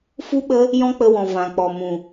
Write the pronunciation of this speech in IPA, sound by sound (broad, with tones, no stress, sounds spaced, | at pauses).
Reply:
f u˦ ɓ ə˦ | j ɔ̃˦ k͡p ə˧ w ɔ̃˨ v ã˨ k͡p ɔ˨ m ũ˨